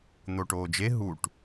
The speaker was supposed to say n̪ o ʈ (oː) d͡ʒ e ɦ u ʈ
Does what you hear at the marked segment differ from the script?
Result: no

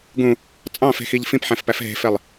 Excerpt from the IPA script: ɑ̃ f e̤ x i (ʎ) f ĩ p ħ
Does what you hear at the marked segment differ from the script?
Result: no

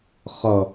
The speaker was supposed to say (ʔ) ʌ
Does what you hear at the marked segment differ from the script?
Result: yes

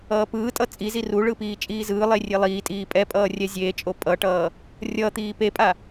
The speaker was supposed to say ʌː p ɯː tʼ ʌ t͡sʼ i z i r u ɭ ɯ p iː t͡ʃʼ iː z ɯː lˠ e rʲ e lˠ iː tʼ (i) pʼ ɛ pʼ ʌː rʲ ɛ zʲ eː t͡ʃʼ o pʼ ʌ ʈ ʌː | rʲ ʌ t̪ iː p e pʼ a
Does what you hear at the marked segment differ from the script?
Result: yes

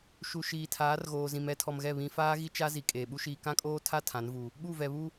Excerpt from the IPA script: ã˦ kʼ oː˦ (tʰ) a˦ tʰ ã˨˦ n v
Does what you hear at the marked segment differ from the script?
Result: no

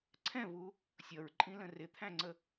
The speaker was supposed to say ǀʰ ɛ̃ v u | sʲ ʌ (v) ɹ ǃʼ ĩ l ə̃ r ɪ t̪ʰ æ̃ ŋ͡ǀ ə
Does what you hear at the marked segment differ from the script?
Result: yes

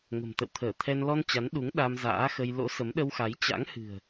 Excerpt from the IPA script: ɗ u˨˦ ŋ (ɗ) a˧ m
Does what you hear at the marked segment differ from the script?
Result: no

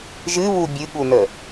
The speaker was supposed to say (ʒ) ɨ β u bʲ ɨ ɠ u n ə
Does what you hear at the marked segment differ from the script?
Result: no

